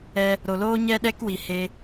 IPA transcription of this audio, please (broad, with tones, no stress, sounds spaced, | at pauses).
ɛ˧ | ɾ o˨ l oː˦ ɲ ɛ˦ ɗ ɛ˦ k w i˨ h e˧